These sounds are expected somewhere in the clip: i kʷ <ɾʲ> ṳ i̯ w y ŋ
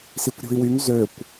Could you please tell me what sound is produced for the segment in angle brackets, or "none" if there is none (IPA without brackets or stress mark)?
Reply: ɾʲ